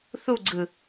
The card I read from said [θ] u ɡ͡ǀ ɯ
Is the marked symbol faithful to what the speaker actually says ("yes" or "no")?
yes